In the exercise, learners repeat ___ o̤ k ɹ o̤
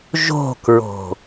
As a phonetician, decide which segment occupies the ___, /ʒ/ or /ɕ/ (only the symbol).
ʒ